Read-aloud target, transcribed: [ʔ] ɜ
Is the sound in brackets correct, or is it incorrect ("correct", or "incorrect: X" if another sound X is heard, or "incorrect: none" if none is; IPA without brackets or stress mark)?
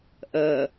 correct